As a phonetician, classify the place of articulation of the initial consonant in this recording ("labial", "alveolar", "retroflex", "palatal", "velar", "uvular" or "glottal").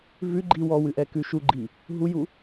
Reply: labial